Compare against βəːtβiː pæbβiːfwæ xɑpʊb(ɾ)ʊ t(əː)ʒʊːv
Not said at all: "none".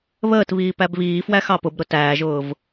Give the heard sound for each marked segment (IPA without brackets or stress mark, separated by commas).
ɾ, æː